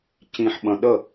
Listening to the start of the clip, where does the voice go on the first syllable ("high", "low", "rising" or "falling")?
low